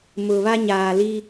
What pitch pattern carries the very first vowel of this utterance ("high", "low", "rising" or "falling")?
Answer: low